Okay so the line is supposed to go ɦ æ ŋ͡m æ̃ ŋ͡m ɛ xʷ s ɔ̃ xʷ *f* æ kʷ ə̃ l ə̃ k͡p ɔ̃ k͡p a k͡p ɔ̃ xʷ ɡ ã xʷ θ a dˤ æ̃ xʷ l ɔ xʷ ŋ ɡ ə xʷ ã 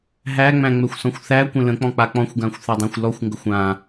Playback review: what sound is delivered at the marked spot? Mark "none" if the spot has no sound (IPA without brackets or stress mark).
θ